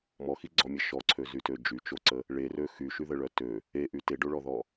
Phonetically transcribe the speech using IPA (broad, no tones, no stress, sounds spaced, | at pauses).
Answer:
m ɔ x i ɡ͡ǀ ɔ mʲ ɛ ʃ ɔ ǀʰ ø z y t ø d͡ʒ y t͡ʃ o ǀ ə | ɭ e r ø x y ʃ y ð ə ɭ œ t ø | e ʔ y t e ɖ o ɭ ɔ ð ɔ